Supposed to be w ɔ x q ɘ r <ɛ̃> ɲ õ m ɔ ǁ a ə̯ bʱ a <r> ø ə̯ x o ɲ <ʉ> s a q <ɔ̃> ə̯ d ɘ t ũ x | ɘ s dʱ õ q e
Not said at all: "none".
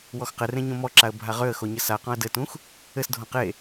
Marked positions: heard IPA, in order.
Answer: ẽ, ʁ, ɘ, ɔ̃

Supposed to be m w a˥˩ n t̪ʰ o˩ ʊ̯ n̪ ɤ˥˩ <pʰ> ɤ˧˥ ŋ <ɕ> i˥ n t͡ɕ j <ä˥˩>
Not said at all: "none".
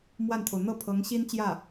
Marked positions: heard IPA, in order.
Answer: pʰ, ɕ, ä˥˩

